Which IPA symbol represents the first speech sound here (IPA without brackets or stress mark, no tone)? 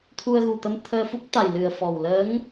t̪ʰ